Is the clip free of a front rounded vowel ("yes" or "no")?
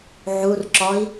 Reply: yes